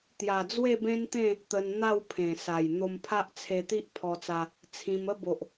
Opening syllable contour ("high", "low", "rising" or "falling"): low